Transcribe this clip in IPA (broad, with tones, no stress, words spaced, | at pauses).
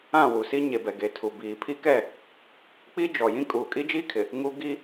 ã˦˨wu˨si˦ ɲe˨bɛ˨ɡe˨tʰu˨ biː˨pʰi˦kɛ˦˨ | k͡pi˦d͡ʒɔ˨jĩ˦ kʼuː˨kʼi˦d͡ʒiː˦kʰɪ˨ | ŋu˦ ɡi˦